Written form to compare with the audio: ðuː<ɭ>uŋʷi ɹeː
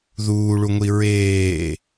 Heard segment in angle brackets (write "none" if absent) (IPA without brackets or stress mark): ɭ